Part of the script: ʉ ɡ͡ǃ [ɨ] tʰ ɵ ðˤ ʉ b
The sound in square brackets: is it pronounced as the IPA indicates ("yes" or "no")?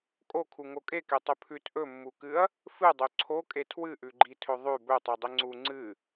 no